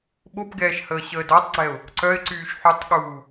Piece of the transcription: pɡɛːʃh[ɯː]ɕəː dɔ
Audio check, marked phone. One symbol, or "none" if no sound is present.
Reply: əː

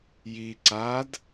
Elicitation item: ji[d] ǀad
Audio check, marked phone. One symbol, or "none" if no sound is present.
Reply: none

